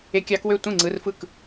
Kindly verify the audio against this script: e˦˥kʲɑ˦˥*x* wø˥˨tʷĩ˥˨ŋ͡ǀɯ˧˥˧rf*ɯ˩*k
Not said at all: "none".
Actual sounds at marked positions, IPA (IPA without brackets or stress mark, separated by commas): k, ɯ˥˨